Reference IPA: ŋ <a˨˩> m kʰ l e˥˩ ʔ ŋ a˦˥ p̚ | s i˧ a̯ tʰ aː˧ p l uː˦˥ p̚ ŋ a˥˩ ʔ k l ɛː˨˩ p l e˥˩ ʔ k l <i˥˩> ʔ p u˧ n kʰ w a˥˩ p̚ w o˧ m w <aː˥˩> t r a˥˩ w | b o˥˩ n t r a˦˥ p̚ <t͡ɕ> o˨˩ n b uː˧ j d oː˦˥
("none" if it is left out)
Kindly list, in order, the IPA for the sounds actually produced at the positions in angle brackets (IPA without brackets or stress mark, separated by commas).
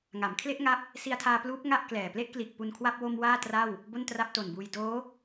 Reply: a˩˦, i˨˩, aː˥˩, t